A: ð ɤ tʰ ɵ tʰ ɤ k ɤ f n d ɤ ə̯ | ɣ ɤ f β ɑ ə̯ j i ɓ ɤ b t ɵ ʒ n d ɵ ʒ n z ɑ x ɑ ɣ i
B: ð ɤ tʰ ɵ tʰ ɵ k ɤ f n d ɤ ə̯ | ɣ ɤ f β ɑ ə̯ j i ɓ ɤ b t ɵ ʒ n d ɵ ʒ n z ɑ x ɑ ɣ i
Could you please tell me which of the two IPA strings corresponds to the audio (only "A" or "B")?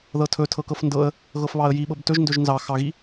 A